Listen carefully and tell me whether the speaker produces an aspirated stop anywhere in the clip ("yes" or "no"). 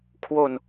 yes